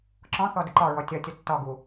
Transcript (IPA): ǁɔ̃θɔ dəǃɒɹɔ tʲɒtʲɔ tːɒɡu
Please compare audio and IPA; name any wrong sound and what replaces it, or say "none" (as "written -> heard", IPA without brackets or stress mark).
none